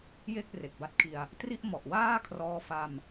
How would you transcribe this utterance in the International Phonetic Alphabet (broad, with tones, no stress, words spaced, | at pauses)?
je˥˩k̚re˨˩k̚ba˦˥t̚kʰi˧a̯ | tri˥˩ʔ mɔ˨˩ʔ waː˥˩ kʰrɔː˧fa˧m